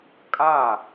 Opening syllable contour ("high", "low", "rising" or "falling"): falling